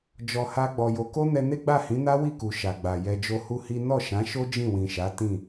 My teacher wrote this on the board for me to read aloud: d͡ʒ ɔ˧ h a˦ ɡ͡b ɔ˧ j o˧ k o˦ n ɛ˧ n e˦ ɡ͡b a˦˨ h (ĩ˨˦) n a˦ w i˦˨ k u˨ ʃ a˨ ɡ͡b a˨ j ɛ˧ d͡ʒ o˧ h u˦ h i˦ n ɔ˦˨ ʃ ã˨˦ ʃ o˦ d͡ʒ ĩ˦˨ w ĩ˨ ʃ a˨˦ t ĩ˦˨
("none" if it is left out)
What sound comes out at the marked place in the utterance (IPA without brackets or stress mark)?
ĩ˨˦